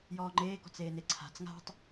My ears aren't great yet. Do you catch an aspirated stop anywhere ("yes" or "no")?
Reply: yes